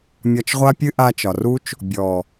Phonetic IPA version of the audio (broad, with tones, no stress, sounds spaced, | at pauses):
mʲ ɒ˧ t͡ʃ ʁʷ a˦ pʲ ɨ˦ ʔ a˧ t͡ʃ ɒ˨ r u˦ t͡ʃ | bʲ ɔ˨